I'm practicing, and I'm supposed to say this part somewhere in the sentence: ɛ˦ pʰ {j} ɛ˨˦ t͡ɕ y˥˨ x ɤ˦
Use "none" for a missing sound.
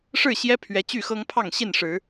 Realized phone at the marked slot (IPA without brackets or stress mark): ɥ